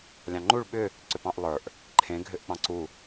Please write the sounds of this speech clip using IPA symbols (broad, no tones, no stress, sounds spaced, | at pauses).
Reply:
lʲ ɑ̃ ŋ͡ǃ u ɭ ɓ ʏ | ǀ ʏ p ɑ̃ ʔ lˠ ə˞ ʔ | ǃʰ ẽ ɡʱ ʏ ʔ k͡p ɑ̃ ǀ u